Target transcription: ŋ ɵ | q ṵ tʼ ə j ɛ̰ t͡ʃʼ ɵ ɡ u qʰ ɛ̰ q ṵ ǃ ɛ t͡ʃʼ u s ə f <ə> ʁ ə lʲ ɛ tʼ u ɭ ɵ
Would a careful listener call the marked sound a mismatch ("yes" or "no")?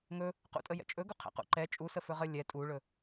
yes